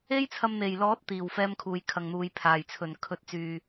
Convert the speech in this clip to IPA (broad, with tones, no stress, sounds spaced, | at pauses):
e˥ j t͡sʰ ɐ˧ m n̪ e˨˩ j l ɔː˨˥ t̚ t̪ iː˨˩ w f ɛː˧ m kʰ uː˨ j kʰ ɐ˨ ŋ n̪ uː˨ j pʰ aː˨˩ j t͡sʰ ɵ˨˩ n kʰ ɵ˨˥ t̚ t͡s yː˨